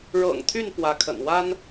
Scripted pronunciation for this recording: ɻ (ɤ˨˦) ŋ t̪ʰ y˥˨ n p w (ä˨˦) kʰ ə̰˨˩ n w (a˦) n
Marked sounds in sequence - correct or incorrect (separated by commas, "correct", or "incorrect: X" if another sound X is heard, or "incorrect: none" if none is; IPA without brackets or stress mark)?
incorrect: ɤ̰˨˩, correct, correct